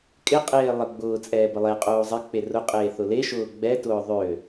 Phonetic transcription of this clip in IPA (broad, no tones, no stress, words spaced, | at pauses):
kʼɪqʼeː lˠə ɡ͡bʊː t͡sʼɛːbəlˠeqʼoː zˤɪ k͡perʊqʼeː θʊleʃʊː ɡ͡bɛtʊː ðˤø